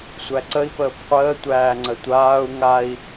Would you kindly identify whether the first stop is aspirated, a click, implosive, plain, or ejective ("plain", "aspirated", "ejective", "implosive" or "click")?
click